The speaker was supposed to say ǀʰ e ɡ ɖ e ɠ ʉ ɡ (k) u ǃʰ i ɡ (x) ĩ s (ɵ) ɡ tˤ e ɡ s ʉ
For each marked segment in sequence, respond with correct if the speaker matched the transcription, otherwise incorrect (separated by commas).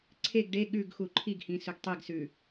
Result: incorrect, incorrect, correct